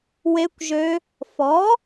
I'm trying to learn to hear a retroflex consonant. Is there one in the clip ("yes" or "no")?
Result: no